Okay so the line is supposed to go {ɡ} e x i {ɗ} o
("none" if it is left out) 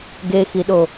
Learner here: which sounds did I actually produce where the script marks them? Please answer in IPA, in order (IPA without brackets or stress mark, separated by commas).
ɡ, ɗ